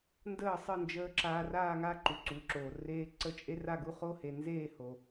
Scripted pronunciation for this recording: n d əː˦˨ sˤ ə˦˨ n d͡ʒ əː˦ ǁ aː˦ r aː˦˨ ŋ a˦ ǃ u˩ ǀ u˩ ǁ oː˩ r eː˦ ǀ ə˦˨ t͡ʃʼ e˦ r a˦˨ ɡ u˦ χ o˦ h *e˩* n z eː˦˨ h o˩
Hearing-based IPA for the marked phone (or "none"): e˩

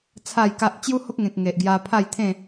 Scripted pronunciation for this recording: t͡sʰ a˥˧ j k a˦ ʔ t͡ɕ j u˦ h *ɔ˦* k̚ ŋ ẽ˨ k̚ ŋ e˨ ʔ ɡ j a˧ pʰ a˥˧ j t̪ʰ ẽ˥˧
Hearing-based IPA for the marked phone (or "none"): o˦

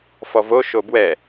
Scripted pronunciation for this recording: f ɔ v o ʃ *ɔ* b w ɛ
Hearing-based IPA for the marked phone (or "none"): o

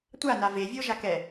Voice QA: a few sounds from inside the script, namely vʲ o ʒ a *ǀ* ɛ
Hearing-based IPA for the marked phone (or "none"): k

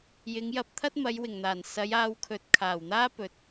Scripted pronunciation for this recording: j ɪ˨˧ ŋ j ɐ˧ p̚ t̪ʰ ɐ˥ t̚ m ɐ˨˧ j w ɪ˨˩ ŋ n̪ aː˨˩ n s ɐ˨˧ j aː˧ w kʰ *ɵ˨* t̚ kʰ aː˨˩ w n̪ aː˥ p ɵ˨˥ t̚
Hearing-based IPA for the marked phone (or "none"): ɵ˨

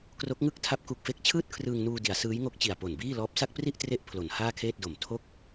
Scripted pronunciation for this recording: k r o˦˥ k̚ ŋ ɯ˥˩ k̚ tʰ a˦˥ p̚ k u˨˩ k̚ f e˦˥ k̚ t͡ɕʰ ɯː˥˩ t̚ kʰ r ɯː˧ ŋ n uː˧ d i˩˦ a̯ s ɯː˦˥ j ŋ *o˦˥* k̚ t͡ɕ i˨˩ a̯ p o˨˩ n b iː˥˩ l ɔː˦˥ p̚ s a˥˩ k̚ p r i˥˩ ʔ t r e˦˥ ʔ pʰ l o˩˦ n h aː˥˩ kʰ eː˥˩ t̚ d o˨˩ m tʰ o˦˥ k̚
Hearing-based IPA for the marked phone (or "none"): o˦˥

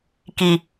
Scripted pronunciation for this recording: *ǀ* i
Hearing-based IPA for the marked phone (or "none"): k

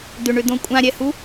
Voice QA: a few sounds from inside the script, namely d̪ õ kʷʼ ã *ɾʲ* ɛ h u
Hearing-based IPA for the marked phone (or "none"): ɾʲ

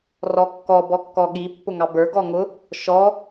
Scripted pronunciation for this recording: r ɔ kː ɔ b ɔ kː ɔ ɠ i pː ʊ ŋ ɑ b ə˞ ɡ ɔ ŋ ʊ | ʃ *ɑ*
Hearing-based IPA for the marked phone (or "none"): ɔ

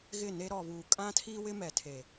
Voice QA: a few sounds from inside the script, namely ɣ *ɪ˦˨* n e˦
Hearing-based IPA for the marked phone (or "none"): ɪ˦˨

